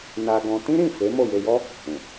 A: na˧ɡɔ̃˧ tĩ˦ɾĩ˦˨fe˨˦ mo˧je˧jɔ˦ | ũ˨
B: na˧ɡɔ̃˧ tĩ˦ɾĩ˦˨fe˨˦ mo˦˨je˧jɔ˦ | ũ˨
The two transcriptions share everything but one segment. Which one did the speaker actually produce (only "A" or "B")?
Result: B